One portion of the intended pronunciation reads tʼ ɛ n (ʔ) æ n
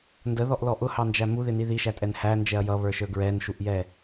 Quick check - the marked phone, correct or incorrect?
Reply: incorrect: h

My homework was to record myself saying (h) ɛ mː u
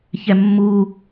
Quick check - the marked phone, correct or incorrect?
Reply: incorrect: ç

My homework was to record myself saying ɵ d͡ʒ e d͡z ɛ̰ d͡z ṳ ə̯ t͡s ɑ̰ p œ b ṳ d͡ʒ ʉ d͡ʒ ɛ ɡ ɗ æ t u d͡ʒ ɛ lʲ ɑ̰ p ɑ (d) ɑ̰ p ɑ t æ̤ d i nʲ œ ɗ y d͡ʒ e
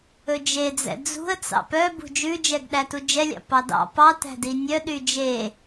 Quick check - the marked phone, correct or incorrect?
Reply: correct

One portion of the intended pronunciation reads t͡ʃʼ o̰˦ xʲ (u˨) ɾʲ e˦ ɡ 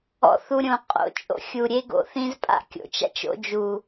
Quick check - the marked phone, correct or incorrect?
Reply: correct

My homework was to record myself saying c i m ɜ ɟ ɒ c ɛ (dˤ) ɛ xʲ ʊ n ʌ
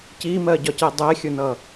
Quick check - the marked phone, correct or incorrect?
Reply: correct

